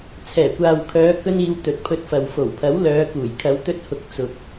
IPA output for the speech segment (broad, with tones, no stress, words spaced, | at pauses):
t͡sʰɛː˨˩kʷaː˨wkʰœː˨˧ kɵ˧niː˨˧w t̪ɵ˨t̚pʰɵ˧t̚fɐ˨w fo˨˩wpʰɐ˨˥wlœː˨˧ kuː˨˩jkʰɐ˨˧w t̪ɵ˧t̚hʊ˨˥k̚ t͡sʊ˨k̚